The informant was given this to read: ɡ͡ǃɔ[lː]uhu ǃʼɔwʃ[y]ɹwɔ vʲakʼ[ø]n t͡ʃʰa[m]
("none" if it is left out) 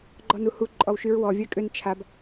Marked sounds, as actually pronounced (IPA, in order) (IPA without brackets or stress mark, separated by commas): n, y, ø, b